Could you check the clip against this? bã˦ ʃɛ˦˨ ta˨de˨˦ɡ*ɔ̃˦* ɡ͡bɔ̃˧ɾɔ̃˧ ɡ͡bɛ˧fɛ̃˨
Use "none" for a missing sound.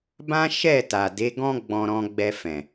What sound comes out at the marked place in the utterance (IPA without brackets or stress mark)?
ɔ̃˦